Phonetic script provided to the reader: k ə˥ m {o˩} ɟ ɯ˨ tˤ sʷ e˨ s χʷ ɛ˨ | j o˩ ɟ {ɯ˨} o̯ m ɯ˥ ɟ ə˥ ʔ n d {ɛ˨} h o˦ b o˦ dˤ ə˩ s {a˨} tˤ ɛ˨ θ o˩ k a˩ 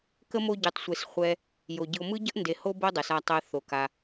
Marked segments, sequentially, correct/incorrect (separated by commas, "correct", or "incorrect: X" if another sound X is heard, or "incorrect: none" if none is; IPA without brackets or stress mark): incorrect: o˦, correct, incorrect: e˨, correct